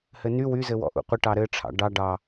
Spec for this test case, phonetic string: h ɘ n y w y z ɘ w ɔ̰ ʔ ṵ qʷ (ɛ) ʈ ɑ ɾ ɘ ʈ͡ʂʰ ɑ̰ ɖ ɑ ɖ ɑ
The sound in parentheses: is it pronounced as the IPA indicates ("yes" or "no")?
no